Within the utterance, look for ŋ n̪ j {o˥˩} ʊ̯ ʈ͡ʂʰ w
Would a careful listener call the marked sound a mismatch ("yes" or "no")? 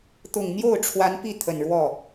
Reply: no